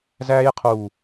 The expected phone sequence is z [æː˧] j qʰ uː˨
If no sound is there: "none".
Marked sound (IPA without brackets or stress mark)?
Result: æː˧